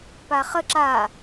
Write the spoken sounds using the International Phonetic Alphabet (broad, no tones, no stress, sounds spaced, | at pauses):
p a χ ə ǁ a